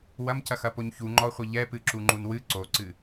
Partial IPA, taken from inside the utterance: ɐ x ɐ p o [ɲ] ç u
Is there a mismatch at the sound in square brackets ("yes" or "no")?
no